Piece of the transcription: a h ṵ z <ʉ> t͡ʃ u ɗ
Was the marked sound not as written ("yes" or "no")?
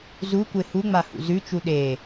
no